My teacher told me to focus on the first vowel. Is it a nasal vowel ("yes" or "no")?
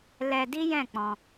no